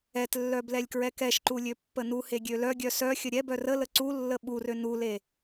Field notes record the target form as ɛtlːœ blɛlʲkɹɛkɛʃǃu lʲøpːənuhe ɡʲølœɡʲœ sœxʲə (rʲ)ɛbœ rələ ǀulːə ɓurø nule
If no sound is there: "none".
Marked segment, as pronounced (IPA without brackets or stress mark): ɾʲ